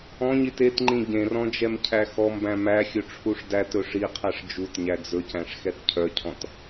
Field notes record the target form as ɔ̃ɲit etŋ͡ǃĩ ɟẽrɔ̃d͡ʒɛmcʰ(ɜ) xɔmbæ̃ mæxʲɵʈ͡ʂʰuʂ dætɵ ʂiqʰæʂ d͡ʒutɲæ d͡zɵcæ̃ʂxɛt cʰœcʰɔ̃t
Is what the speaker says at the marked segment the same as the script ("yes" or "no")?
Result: no